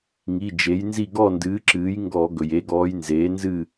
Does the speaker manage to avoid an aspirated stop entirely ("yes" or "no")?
yes